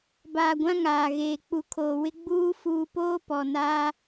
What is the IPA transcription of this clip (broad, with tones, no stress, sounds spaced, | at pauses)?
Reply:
b aː˨ ɡʷ ã˦ ŋ aː˨ ɣ eː˨ k͡p u˨ kʰ oː˨ w ɪ˦ ɡ͡b uː˦ f uː˨ p oː˦ p ɔ˨ n aː˦